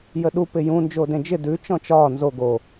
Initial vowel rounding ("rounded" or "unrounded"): unrounded